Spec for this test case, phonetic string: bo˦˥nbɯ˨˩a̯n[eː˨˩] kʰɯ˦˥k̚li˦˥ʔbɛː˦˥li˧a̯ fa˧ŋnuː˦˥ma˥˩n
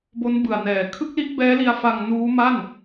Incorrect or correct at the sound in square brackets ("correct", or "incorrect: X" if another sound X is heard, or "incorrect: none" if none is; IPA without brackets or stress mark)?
incorrect: ɛː˨˩